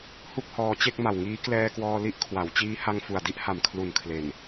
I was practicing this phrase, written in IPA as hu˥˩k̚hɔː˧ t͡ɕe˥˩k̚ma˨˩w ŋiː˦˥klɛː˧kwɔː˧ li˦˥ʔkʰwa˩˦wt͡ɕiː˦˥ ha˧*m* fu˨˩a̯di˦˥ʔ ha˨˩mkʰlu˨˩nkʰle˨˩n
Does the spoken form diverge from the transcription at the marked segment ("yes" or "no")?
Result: yes